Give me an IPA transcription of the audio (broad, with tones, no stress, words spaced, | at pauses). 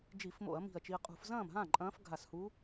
d͡ʒi˧˩˧fmo̰˧˩˧ɐ̯ mi̤˧˩ɐ̯t͡ʃi˧ɐ̯ qʼṳ˧˩˧f zɐ̃ː˥˩mɦã˥˩ ǃʼɐ̃ː˧˥fɡʱa˧˩shu˧˥